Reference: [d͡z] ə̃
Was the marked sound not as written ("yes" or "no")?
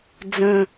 no